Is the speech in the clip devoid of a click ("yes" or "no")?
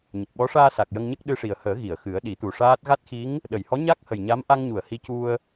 yes